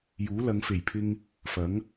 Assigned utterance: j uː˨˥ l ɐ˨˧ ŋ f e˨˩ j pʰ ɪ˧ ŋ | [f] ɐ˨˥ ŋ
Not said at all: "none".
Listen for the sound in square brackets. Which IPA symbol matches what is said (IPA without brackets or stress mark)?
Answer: f